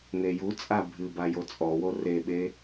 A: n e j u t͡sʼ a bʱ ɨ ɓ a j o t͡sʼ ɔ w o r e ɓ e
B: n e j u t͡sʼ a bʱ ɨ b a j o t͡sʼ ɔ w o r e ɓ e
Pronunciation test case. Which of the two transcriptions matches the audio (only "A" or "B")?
B